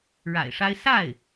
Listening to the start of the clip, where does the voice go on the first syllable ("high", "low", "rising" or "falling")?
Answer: low